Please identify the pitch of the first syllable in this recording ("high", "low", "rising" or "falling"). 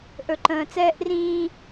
low